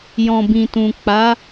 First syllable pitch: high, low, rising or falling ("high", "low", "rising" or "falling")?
low